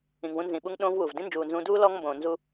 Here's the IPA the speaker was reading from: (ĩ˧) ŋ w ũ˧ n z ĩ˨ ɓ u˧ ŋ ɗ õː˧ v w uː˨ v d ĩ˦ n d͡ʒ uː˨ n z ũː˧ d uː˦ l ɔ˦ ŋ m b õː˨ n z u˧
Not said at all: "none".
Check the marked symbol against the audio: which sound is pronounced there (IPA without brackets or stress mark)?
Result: ĩ˨